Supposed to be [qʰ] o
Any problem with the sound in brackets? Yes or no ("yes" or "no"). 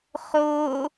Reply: yes